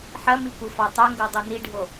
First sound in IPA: ħ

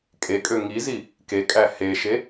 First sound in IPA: kʼ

